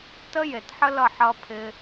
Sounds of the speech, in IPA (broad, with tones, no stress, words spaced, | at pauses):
tə˦ je˨tħə˦lʌ˦˨ ħʌ˧pʰɪ˧